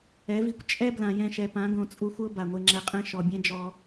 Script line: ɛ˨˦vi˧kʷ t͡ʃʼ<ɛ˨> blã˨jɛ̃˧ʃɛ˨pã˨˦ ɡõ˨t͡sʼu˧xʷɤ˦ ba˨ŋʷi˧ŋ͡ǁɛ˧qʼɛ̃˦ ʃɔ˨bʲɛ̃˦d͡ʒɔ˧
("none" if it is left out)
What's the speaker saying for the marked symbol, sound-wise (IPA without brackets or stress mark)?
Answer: ɛ˦